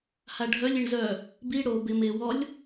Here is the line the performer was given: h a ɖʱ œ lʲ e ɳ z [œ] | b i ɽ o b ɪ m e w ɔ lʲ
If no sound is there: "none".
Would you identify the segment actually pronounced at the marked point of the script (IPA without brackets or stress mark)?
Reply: œ